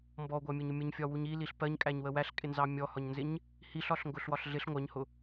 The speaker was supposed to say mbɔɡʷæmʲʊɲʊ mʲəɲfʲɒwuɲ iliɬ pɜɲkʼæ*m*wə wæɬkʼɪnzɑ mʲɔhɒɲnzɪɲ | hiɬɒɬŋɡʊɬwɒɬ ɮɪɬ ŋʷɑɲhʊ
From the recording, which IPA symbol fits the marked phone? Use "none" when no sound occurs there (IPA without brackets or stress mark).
ɲ